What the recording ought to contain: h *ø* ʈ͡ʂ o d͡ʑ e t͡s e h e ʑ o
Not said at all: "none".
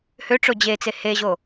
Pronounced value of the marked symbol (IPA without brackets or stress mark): ø